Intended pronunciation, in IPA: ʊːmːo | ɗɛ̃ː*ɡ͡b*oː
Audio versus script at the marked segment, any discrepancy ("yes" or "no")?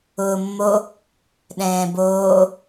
yes